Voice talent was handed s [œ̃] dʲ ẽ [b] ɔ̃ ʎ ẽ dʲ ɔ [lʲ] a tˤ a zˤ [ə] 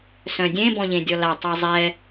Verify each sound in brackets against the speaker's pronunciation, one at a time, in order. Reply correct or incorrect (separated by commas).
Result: correct, correct, incorrect, incorrect